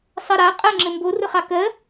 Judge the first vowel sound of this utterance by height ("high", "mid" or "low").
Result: mid